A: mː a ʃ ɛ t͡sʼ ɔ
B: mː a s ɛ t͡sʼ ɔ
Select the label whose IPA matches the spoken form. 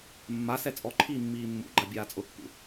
B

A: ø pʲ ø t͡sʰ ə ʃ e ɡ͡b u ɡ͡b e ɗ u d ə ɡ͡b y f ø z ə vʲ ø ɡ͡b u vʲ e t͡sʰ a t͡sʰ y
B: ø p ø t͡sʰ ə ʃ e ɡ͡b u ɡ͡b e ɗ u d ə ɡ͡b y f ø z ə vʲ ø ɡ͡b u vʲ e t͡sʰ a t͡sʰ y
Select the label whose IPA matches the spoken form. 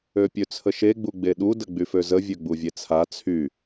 A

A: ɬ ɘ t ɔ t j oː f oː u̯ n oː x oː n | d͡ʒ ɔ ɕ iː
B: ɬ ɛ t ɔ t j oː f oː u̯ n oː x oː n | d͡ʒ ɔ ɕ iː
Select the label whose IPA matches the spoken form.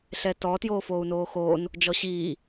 B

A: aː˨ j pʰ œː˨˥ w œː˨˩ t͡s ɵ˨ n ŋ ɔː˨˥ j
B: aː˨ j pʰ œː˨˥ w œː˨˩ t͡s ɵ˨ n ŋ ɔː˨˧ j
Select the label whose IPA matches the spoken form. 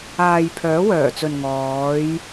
B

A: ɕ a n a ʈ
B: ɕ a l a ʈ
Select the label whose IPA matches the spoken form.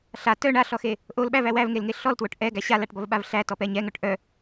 B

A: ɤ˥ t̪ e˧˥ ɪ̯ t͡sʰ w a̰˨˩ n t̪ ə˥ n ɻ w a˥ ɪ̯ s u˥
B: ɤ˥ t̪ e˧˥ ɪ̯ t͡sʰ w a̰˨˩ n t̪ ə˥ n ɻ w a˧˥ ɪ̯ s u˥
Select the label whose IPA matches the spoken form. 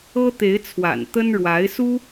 B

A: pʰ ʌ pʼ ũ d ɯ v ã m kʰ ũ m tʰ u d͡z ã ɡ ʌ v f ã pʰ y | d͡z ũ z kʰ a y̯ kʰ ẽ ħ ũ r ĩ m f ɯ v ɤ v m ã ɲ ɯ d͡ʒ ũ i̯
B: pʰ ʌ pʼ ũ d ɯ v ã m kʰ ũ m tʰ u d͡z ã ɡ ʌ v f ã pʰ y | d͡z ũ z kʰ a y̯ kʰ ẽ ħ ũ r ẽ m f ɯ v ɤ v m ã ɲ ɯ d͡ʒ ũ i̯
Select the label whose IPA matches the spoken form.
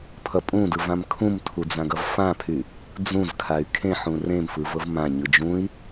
B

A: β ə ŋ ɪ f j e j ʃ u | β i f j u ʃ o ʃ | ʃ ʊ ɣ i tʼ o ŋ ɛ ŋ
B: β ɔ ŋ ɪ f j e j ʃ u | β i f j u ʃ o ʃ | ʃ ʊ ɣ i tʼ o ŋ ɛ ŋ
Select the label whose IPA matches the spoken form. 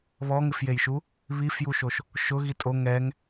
B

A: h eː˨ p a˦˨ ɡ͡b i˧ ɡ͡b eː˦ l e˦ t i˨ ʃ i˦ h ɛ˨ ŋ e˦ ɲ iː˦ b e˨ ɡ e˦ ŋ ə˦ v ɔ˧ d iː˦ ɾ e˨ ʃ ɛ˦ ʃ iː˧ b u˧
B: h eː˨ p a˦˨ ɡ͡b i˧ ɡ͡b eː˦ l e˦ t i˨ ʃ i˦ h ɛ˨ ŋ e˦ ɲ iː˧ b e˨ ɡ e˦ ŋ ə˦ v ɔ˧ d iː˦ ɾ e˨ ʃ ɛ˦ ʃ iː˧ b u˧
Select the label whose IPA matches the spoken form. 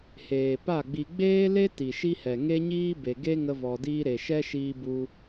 A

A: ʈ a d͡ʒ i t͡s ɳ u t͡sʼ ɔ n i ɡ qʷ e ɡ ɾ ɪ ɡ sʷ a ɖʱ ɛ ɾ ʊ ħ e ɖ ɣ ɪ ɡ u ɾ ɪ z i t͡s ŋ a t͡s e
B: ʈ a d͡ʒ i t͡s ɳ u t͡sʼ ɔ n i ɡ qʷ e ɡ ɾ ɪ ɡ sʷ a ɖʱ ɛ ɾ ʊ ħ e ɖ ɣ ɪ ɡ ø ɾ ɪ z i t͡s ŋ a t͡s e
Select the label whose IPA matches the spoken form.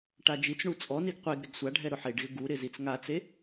A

